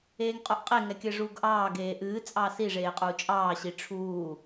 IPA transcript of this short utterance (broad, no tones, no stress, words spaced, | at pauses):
eːŋqʼoʔqʼe ŋɛkʲɘʐuːɡʔɑː ɡeːʔɨː t͡sʼɑsi ʐeːqʼuːt͡ʃʼɑː ɕiʈ͡ʂʰuː